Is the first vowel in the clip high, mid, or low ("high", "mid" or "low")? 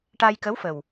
low